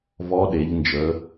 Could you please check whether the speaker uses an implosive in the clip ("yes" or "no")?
yes